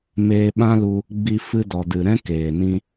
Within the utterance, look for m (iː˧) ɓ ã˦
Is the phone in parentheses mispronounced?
yes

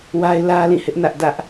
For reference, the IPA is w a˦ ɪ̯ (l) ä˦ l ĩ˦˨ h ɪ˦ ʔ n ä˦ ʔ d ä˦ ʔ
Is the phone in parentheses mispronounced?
no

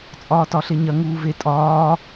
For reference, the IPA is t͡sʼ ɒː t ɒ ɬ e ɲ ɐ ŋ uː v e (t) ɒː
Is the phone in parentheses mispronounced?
yes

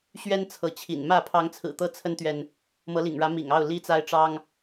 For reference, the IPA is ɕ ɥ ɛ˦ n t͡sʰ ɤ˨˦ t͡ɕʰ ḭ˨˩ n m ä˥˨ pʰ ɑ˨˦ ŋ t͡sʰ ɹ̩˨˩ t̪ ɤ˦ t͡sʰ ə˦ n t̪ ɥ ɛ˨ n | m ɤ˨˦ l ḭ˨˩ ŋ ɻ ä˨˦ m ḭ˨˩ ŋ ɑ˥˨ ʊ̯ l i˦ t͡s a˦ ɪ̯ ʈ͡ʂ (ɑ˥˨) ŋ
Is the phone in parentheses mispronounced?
yes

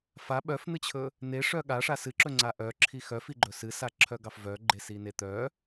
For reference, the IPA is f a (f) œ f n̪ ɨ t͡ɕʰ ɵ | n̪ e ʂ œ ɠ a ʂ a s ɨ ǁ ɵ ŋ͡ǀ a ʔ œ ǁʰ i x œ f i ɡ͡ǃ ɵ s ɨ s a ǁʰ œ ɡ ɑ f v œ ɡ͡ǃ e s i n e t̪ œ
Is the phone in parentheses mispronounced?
yes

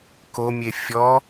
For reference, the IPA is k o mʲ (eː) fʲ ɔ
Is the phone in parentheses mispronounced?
yes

